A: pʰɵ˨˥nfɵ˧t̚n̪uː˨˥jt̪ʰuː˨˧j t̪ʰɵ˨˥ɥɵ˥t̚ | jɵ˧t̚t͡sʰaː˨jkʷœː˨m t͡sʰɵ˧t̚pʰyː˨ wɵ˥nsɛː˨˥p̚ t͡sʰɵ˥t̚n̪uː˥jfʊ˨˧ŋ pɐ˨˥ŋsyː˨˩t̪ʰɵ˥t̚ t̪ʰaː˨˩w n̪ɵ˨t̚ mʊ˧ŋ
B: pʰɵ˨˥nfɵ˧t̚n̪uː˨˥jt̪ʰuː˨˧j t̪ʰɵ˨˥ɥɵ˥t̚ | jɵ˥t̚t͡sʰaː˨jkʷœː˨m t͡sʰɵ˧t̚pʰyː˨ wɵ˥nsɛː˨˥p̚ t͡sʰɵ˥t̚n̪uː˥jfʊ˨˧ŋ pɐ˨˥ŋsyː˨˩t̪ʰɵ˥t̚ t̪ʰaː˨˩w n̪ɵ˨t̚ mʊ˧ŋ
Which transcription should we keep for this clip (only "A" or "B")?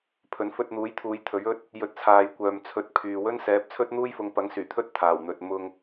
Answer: A